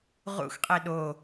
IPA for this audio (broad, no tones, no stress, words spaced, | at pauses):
ʁṵxqʼe ɗo